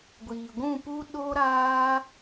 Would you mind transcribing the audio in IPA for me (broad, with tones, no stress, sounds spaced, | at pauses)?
ɡʷ iː˨ ɡʷ ũ˦˨ p u˦ ɗ o˦ ɾ aː˦